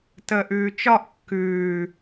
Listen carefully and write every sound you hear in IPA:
t əː ʔ ʉː t͡ʃ ɒ ʔ kː ʉː

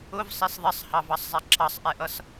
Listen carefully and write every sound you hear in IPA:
ʊ v sˤ i s ðˤ ɪ sˤ h ɑ v ɑ sˤ zˤ ɛ ǁ ɑ sˤ ʔ ɛ ʔ ʌ s

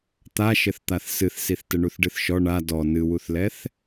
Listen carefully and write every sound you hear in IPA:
t̪ a ʃ ɘ θ t̪ a θ s ɨ θ s i θ t ɘ ɳ u θ ɖ ɨ θ ʃ ɔ ɳ a d ɔ n ɨ w u θ l ɛ θ

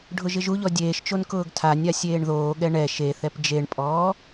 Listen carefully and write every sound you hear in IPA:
ɖʱ ʊ ʒ ɪ ʒ u ʎ ɔ dʲ eː ʃ t͡ʃ o n k ʊː ɡ tʰ a nʲ a sʲ eː ɳ ð oː ɠ ɛ ɳ ɛ ʃ e θ ɛ p d͡ʒ e ɳ pʼ ɔː

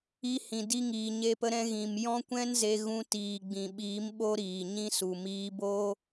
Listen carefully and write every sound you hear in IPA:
i˧ h ĩ˨ d i˧ ŋ iː˨ ɲ e˦ p ə˦ ɾ ɛ̃˦ ɣ ĩ˨ m j ɔ̃˦ kʷ ɛ̃˦ n z e˧ ɣ ũ˧ t iː˨ ɡ͡b ĩ˨ ɓ iː˨˦ m ɓ o˦ ɾ iː˨ ɲ ĩ˦ s u˨ m iː˧ b o˦

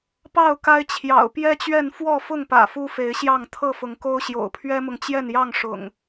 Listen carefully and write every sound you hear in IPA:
p ɑ˥˨ ʊ̯ k a˦ ɪ̯ t͡ɕʰ j ɑ̰˨˩ ʊ̯ p j ɛ˦ t͡ɕ ɥ ɛ˥˨ n f w ɔ˥˨ f ʊ˥˨ ŋ p ä̰˨˩ f u˦ f e˨˦ ɪ̯ ɕ j ɑ˥˨ ŋ t̪ʰ ɤ˥˨ f ʊ˨˦ ŋ k o˦ ʊ̯ ɕ j o̰˨˩ ʊ̯ pʰ ɥ ɛ˦ m ʊ˨ ŋ t͡ɕ j ɛ˥˨ n j ɑ˥˨ ŋ ʂ ʊ̰˨˩ ŋ

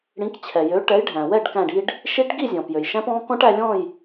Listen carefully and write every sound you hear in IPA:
ɽ ĩ˨˥ k t͡ɕʰ ɛ˩ j ø˨˥ ʈ ɛ˨˥ j ɖʱ æ̃˩ w ɛ˥˨ ɖ k æ̃˧˩ ɖ i˧ ɖ | ʃ i˦˥ ʈ ɡ i˥˨ zʲ ɔ̃˩ p j ø˩ j ʃ æ̃˦˥ p ɔ̃˦˥ k ɔ̃˦˥ ʈ æ˧ lʲ ɔ̃˥˨ j

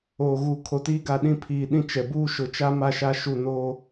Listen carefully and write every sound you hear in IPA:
oː˨ ɣ u˨ kʰ o˨ t iː˦ ɡ a˨ ɗ ĩ˦ pʰ iː˨ ɗ ĩ˦ t͡ʃ ɛ˨ b uː˦ ʃ ʊ˨ t͡ʃ a˦ m a˦ ʃ a˦ ʃ u˦˨ n oː˦

